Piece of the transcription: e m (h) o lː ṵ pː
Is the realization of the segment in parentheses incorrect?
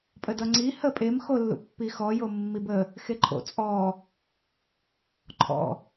yes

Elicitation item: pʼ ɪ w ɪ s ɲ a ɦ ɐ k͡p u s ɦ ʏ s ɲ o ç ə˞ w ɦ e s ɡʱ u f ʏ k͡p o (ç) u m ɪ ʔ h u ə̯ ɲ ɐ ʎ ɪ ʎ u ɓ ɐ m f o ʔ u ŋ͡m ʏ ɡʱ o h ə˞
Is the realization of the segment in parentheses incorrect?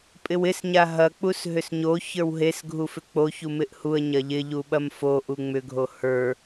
no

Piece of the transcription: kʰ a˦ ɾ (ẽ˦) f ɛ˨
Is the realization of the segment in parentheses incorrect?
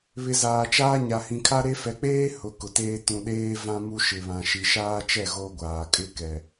yes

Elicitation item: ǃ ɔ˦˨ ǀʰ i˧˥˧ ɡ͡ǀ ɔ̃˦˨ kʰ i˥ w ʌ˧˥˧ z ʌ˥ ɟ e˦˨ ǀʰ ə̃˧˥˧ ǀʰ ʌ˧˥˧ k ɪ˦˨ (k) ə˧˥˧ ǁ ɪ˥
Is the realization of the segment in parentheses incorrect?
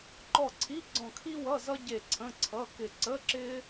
yes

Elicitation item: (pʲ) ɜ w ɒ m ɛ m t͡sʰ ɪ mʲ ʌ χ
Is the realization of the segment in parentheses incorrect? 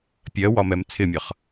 no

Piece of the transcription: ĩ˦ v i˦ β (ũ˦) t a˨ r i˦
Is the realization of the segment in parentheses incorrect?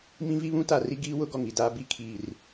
no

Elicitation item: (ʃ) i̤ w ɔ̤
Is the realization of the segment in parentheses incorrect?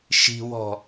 no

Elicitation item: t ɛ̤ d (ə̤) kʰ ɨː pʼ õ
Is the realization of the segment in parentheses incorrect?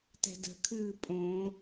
no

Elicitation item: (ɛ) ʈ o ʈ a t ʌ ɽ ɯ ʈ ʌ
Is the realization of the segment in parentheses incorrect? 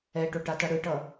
no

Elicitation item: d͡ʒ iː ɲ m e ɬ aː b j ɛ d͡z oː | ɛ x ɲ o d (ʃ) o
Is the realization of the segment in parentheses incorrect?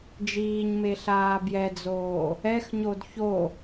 yes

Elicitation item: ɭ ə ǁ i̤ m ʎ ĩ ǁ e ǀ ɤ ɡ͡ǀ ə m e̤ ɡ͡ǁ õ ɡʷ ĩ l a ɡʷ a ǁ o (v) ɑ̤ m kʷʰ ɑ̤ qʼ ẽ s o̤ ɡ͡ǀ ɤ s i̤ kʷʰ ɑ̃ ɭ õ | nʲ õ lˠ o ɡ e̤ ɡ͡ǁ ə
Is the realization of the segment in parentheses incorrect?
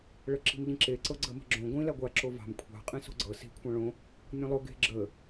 no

